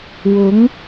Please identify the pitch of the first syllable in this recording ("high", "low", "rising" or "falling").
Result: rising